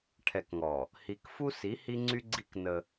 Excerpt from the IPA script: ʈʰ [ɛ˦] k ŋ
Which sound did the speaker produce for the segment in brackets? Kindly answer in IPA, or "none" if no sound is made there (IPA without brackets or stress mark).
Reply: ɛ˨